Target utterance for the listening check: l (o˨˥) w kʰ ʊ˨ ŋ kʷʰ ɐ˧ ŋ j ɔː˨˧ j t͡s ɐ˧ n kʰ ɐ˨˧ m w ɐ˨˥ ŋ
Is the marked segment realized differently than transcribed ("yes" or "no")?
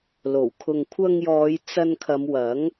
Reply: yes